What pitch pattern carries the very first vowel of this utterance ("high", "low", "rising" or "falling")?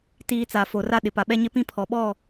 low